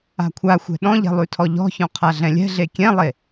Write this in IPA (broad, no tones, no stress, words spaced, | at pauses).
a̤kʷʰaxʷɛ̤ ɗɔ̃ʎɛ̤ lˠʉtʰɔʎɔ̤çɔ̃ qʰaɮɛ̃lʲɛ̤ɮe kʲɛ̃lˠe